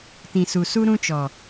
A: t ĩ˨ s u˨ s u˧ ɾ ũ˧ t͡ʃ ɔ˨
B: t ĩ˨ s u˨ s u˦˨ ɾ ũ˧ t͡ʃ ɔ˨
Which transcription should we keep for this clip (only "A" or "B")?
A